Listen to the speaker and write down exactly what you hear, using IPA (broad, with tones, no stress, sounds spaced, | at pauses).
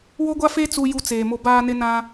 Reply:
w o˦ ɡʷ a˦ f e˦ t͡s u˦ j u˦ t͡s eː˨ m o˦ b aː˦ n ɪ˦ n ã˦